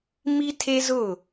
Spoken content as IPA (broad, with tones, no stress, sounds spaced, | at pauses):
m i˦ tʰ e˦ z ʊ˦˨